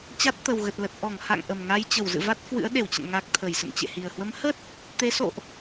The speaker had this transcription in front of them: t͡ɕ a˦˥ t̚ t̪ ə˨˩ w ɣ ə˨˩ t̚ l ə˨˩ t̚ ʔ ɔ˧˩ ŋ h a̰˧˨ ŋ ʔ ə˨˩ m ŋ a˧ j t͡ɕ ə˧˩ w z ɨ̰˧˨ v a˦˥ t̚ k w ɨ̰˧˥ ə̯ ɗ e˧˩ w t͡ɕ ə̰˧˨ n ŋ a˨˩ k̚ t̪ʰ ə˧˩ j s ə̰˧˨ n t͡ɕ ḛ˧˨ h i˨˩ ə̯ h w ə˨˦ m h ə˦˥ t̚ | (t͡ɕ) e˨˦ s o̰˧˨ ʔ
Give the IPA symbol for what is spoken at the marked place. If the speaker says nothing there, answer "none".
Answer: t̪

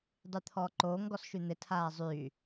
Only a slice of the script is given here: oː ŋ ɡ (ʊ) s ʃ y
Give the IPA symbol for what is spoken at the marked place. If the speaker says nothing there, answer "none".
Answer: ɔ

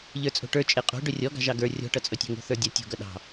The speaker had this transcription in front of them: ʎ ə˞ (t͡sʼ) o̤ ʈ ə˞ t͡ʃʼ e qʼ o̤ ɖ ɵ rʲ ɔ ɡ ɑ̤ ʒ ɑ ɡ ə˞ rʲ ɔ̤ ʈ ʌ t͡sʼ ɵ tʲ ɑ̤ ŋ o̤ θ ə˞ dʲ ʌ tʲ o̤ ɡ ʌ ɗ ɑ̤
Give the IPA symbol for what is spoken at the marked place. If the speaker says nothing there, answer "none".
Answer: t͡sʼ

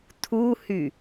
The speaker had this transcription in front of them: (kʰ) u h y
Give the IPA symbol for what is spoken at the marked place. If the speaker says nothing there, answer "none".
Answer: tʰ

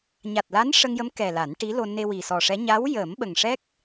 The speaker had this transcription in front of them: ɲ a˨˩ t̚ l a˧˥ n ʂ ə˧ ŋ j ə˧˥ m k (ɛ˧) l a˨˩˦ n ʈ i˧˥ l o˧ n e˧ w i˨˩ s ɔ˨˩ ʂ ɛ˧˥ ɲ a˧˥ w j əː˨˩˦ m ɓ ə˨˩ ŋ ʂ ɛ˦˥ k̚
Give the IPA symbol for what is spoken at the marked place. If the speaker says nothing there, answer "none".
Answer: ɛ˨˩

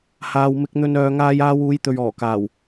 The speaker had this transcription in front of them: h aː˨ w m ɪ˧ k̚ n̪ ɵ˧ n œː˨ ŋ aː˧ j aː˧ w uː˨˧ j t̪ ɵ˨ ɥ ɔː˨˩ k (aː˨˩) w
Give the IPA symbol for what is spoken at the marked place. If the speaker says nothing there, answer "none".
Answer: aː˨˩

